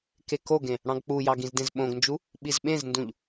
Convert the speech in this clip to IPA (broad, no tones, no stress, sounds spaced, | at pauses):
k e k o ɡ ẽ | ɽ ɑ̃ ɡ k͡p u j ɑ ɡ ĩ z d ẽ z ɓ õ ɡ n d͡ʒ u | ɓ i z ɓ ẽ z n d ũ ʎ